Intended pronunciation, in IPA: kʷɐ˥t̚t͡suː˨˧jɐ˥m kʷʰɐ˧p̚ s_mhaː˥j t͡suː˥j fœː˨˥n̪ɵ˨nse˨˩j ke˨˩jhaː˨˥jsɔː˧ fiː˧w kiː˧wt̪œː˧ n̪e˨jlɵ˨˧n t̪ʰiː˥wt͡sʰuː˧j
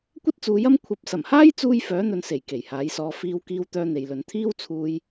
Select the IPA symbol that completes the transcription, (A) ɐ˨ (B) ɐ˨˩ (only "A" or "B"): B